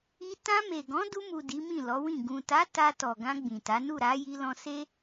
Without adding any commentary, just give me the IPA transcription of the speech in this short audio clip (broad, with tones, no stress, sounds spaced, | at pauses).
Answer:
i˧ t ã˧ m e˨ ɡ ɔ̃˨˦ d u˧ m u˨ d i˨˦ m ĩ˦˨ l ɔ˨˦ w ĩ˦˨ ɡ ũ˨ t a˨˦ t a˧ t ɔ˨ ɡ ã˧ ɡ͡b ĩ˨ t a˨˦ n u˦˨ ɾ a˨˦ j i˧ l ɔ̃˧ s e˦